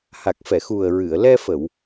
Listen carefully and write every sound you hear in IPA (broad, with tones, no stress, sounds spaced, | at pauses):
h a˨˩ k̚ f ɛ˨˩˨ x u˨˩ ə̯ ɹ ɨ˨˩˨ ə̯ l ɛ˧ f ə˨˩˨ w